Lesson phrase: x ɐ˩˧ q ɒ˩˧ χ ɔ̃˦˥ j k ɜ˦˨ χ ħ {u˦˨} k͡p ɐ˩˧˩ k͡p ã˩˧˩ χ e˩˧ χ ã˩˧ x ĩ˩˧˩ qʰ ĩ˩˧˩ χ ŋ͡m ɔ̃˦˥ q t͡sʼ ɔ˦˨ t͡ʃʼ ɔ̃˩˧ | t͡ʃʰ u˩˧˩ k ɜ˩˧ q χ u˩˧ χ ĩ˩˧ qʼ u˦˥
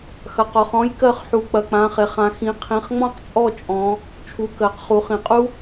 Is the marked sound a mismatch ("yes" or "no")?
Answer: yes